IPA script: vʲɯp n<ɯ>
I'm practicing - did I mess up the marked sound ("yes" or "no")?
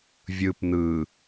no